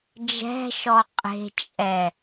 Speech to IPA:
d͡ʒ ɛ̤ ʃ ɔ qʼ e̤ t͡ʃʼ ɛ

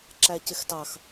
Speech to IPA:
ǁ æ c ɪ x t ɑ x

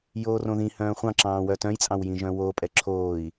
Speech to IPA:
j oː r õ ð ĩ h œ̃ː χʷ ɑ̃ ǁ ɑ̃ː w œ t œ̃ j t͡sʼ ɑ̃ w j ĩ ʒ œ̃ w o pʼ ɛ ǁʰ oː i̯

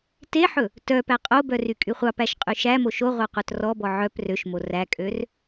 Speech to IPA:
t e ħ ɵ | t œ p æ qʼ o b œ r y kʼ y χʷ ɑ p æ ʃ qʼ y ʃ æ m o ʃ o ʁʷ ɑ qʷ œ t r ɔ b ɔ ʕ œ p r ø ʃ m o r æ kʼ ø r

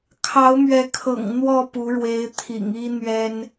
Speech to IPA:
kʰ ɑ˨˦ ʊ̯ m ɥ ɛ˨˦ kʰ ɤ̰˨˩ ŋ n̪ w ɔ˥˨ p u˨˦ ɻ w e˨˦ ɪ̯ t̪ʰ ḭ˨˩ ŋ i˦ n̪ ɥ ɛ˦ n

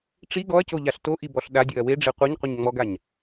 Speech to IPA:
ʈ͡ʂ i ɡ ɔ ɐ̯ c o ʎ a ɬ t o ʔ i b ɔ ɬ ɗ a dʲ ɵ ɐ̯ w e ɖ͡ʐ e qʷ e ɲ qʷ ə ɲ ŋ͡m ɔ ɡ a ɲ

